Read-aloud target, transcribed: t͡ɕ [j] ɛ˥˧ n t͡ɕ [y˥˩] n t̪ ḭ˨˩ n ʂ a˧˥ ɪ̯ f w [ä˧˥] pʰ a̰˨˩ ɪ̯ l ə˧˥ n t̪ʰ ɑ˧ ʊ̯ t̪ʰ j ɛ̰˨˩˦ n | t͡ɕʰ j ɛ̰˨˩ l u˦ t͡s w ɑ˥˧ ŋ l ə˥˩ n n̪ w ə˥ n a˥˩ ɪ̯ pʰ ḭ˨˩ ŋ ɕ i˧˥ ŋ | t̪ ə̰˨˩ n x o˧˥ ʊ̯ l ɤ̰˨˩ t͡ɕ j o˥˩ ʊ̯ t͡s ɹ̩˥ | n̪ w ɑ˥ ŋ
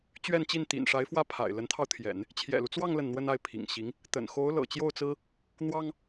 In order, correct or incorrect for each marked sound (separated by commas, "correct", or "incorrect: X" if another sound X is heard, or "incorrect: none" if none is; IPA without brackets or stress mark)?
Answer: incorrect: ɥ, incorrect: i˥˩, incorrect: ä˥˩